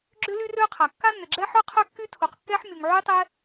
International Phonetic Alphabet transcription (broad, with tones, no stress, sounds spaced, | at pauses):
ɡ͡ǁ ʏ˥ l y˥ r ø˥ qʰ a˩ kː a˥ nː ʏ˩ ɡ͡ǁ ɛ˥ ħ œ˥ qʰ œ˥ kː y˥ tʰ u˩ q kː ɛ˥ ħ mʲ u˩ ŋ ʕ y˥ tˤ ɛ˥